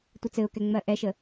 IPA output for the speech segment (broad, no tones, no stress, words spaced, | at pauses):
tʷɘt͡sɘʊ̯kɛ ŋ͡mɜʔɛʃə